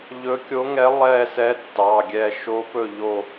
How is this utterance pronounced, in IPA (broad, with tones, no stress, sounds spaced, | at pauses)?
ʎ ɵ˧˥ kʲ o˧˥ ŋ ɛ˧˥ lˠ ɛ˦˨ s ɛ˧˥ tː ɑ˩˧˩ ɡʲ ɛ˦˨ ʃ o˧˥ p ɵ˦˨ ʎ o˦˨